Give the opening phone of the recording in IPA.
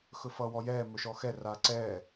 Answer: x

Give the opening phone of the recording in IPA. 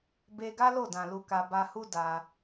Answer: b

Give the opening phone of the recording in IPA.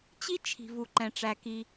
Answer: t͡ɕ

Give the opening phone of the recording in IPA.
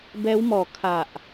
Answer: b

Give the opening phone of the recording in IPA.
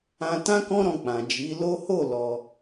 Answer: ã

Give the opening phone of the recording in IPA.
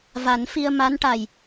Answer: v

